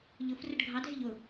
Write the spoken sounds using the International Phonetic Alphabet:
ʎ ʊ f r ə ɖ ɡʱ ɑ dʱ ɪ ʎ ʊ

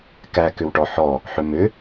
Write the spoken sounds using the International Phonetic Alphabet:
k æ k ʏ w ʈ ɔ ħ ɔ | ħ ʏ m ʏ

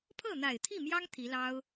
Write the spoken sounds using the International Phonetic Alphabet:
pʰ ɤ˥˩ n̪ a˨˩ ɪ̯ t̪ʰ i˥˩ m j ɑ˥ ŋ t̪ʰ i˧˥ l ɑ˥ ʊ̯

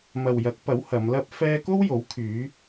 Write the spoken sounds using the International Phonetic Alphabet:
m ɐ˨ w j ɐ˨˥ k̚ p ɐ˨˥ w h ɐ˨˧ m l ɐ˥ p̚ f ɛː˥ k o˥ w j o˨˥ w kʰ yː˨˧

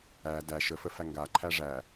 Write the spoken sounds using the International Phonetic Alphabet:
æ d æ ʃ ə f ə f æ ŋ ɡ a ǃʰ æ ʐ æ

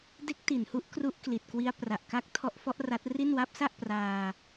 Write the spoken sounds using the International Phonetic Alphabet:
d e˦˥ k̚ t i˨˩ n h u˦˥ ʔ k r u˦˥ ʔ k l i˨˩ t̚ k w i˦˥ a̯ p r a˨˩ ʔ k a˦˥ k̚ tʰ ɔ˦˥ ʔ f ɔ˦˥ ʔ r a˦˥ t̚ r i˥˩ n w a˦˥ p̚ s a˥˩ ʔ p r aː˧

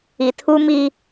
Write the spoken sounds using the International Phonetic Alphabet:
i˨ tʰ u˦ m i˦

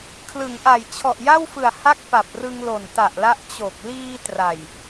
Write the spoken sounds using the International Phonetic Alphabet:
kʰ l ɯ˩˦ ŋ ʔ a˨˩ j t͡ɕʰ ɔ˨˩ ʔ j a˥˩ w f ɯ˨˩ a̯ h a˥˩ k̚ p a˨˩ p̚ r ɯ˧ ŋ l o˨˩ n t a˨˩ ʔ l a˦˥ ʔ t͡ɕ o˨˩ k̚ l iː˧ t r a˨˩ j

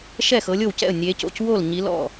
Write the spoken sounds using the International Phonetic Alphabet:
ʃ ɛ˥˩ x ɤ˨˦ lʲ o˥˩ w c ɛ̰˥˩ ə̯ nʲ e˨˦ c o̰˥˩ c w o˥˩ l ɲ i˨˦ l ɔ̰˥˩

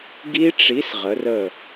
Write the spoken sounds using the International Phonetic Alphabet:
ɡ i˦˥ ʈ͡ʂ i˨˥ s ʁ ə˩˧ r ə˧˩

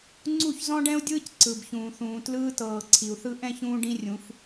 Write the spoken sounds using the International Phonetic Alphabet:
ŋ͡ǀ u˦˨ ç z ɔ̃˦ ɖ ɛ̃˦ u̯ dʲ ɯː˦ c ǀ ɯ˨ b ç ũː˨ θ ũː˨ t l ɯː˦ t ɤː˨ ǀʰ i˨ u̯ θ ɯ˦ ʔ ɛ̃˦˨ ç ũː˧ ɖ ĩ˦ rʲ ũ˨˦ f

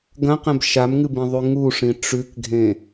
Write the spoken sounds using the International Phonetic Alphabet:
ɡ ɐ̃ q ẽ b ʃ a m ŋ ɨ b ĩ ðˤ ʉ ŋ u ʂ ĩ ʈ͡ʂ ʉ k ɡʱ ẽ

